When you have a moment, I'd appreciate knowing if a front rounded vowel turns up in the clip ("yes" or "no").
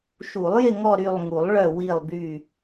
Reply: yes